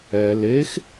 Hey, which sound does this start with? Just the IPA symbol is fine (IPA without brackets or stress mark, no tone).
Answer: ɛ